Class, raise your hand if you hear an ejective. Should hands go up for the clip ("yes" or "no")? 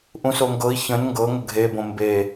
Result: no